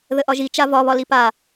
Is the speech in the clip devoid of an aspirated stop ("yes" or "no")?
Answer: yes